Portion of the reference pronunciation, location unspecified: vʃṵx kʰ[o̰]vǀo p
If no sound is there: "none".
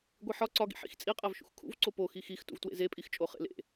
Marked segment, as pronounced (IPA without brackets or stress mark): ṵ